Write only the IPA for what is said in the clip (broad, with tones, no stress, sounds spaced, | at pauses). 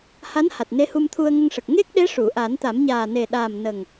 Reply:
h a˧˥ n h a˨˩ t̚ n e˧˥ h u˧ m t̪ʰ u˧ ə̯ ŋ ə˧ ŋ ʂ ə˨˩ k̚ ŋ e˦˥ k̚ ɗ e˧˥ ʂ u˨˩˨ ʔ a˨˩˦ n t̪ a˨˩˦ m ɲ aː˨˩ n e˨˩ ɗ aː˨˩ m n ə˨˩ ŋ